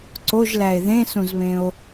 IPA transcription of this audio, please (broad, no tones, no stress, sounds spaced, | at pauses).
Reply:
ǀ o ʒ l æ e̯ ð ẽ s ũ z β ẽ o̯